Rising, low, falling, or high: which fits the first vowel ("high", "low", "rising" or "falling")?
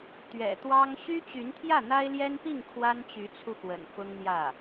low